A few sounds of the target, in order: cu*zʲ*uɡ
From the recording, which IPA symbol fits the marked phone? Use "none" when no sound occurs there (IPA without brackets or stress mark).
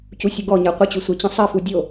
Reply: sʲ